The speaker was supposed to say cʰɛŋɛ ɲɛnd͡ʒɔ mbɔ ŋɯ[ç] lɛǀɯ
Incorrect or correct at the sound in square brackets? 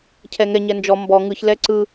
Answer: correct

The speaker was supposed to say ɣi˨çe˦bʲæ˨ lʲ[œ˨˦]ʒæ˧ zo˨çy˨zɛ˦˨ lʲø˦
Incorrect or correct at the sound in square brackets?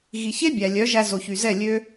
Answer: correct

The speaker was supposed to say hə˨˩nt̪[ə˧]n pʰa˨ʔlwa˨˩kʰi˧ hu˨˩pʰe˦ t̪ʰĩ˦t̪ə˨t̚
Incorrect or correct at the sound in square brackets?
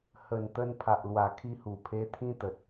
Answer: correct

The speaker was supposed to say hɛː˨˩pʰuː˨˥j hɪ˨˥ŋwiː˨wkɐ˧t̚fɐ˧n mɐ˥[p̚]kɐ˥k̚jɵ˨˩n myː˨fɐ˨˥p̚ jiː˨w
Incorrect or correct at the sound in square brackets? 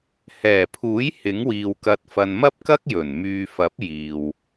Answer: correct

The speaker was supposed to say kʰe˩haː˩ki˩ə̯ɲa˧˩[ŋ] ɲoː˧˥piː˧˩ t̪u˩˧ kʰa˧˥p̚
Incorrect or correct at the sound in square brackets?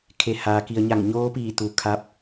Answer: correct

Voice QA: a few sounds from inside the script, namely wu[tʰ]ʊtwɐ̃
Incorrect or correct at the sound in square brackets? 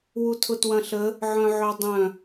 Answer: correct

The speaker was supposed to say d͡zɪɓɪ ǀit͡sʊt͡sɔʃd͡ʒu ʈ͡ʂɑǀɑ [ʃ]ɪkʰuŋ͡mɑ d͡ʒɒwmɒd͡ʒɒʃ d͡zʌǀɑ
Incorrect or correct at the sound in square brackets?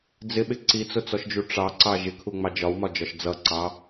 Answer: incorrect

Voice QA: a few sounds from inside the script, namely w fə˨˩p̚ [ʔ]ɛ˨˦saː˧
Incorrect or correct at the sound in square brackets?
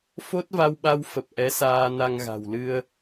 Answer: correct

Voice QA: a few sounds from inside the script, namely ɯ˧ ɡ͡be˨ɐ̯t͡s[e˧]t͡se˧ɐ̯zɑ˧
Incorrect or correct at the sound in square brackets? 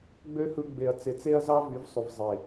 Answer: incorrect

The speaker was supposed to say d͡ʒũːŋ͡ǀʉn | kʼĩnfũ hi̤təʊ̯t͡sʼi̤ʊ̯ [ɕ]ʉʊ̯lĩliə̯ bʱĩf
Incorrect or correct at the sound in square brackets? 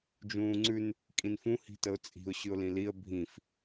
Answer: correct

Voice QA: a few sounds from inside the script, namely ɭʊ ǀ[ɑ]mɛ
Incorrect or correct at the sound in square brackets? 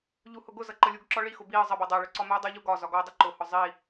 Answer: incorrect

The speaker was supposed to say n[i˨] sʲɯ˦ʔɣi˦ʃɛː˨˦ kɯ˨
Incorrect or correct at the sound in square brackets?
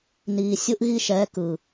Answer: incorrect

